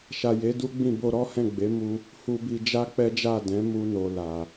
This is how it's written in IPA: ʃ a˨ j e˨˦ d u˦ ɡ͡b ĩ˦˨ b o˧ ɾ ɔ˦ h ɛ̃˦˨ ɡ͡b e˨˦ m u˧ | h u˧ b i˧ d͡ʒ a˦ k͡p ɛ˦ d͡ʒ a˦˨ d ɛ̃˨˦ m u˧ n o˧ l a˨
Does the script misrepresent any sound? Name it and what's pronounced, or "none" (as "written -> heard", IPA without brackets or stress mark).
none